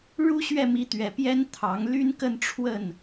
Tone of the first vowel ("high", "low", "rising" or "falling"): high